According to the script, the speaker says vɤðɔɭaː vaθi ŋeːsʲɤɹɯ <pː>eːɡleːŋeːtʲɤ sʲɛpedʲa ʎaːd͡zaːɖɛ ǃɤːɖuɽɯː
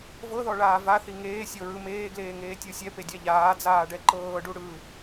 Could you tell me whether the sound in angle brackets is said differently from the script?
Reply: yes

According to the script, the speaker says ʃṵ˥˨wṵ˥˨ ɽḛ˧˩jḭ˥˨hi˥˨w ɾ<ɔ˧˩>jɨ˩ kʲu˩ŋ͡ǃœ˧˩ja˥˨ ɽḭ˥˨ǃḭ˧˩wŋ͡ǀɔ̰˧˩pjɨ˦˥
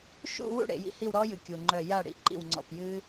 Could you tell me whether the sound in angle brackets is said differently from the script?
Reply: yes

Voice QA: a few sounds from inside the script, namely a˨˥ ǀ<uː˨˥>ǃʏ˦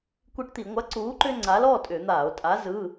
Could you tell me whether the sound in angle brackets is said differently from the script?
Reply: no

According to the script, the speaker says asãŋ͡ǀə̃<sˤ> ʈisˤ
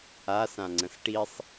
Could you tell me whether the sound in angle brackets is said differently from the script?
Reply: yes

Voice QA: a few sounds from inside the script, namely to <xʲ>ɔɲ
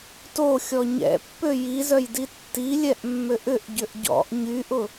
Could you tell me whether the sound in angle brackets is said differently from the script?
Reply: no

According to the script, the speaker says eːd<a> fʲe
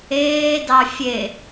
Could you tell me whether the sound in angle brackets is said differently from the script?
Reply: yes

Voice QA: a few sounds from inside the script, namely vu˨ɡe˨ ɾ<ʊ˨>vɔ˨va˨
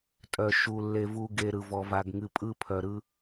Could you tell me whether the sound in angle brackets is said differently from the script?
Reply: yes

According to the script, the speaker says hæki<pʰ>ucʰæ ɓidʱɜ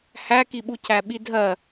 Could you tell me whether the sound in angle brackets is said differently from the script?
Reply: yes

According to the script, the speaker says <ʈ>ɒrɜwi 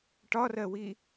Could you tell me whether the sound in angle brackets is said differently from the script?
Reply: no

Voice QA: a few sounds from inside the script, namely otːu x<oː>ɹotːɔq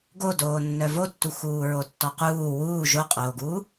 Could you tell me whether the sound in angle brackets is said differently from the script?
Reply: yes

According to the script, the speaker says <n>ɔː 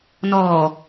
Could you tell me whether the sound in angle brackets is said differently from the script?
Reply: no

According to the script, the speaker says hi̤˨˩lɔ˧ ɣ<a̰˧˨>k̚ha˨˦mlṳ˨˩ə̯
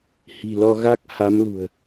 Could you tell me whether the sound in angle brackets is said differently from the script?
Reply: yes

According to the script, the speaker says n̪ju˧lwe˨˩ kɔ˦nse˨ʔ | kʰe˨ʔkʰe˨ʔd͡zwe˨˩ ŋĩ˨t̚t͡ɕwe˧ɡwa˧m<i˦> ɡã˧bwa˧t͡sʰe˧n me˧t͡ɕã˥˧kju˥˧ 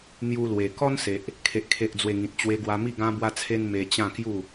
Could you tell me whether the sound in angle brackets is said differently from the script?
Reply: yes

